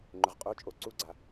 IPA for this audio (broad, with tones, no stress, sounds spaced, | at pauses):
ŋ͡ǃ ɵ˩ ʁ qʼ o˧˥˧ t͡ʃʼ o˩˧˩ ǀ u˧˥˧ ɡ͡ǀ a˩